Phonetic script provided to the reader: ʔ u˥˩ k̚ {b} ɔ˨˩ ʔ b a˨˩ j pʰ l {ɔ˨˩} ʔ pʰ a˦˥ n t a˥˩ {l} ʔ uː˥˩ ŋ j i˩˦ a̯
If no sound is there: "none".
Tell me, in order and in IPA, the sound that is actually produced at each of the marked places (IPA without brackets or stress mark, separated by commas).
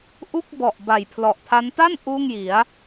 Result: b, ɔ˨˩, n